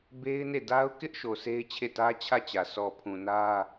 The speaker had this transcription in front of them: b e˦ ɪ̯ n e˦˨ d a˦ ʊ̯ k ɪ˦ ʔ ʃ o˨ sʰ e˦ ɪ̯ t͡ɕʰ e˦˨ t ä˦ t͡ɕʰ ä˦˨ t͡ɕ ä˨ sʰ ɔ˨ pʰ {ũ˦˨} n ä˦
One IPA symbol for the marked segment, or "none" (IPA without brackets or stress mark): ũ˨